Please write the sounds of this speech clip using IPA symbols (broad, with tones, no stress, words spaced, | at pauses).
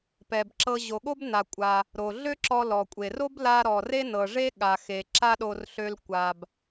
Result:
pɛ˩bǁɤ˧ ʑo˩ɠo˥bna˩kʷʼa˩ | ɾo˩ɮø˥ǁɔ˧ lɔ˩kʷʼe˩r o˥bla˧ ɾɔ˩re˥nɤ˩ ʐe˥ɠa˩xe˩ ǁa˥ɗo˧rɬø˧l kʷa˩b